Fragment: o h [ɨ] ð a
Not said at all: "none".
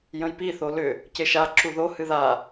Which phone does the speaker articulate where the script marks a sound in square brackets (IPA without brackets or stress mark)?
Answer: ɨ